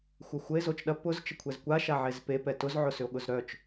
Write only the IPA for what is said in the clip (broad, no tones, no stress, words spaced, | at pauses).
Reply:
xʷɐxʷəe̯ zot͡ʃɗɐ pʊz t͡ʃəkʷʰɛzkʷa ʃaʕezpe pɛtʊz ʕʊsʏo̯ɠʊzɾœt͡ʃ